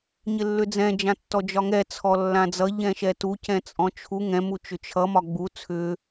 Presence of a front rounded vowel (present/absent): present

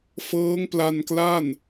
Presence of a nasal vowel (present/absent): absent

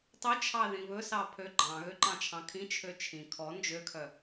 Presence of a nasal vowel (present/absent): present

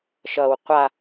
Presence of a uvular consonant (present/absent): present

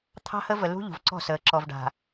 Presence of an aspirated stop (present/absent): present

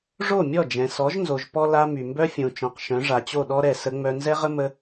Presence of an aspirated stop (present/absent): absent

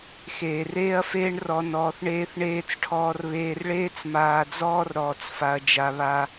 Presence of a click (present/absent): absent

